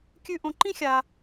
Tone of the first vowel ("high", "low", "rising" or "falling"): high